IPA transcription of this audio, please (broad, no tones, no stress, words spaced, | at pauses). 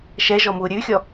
ʃɛʒɔmu ɾʲʉxʲɔ